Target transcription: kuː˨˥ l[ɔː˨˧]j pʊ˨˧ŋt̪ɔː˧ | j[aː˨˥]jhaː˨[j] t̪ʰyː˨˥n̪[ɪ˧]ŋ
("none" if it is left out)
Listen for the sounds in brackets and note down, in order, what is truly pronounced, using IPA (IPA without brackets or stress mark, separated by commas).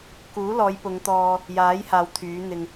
ɔː˨˧, aː˨˥, w, ɪ˧